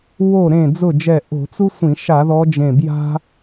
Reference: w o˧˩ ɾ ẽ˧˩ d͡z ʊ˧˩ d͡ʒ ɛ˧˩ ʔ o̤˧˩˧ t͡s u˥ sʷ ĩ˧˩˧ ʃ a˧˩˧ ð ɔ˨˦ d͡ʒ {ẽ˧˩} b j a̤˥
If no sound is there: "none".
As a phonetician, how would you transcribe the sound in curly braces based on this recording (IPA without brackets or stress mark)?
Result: ẽ˧˩